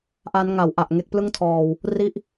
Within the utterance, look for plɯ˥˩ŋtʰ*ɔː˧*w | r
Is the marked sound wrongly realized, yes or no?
no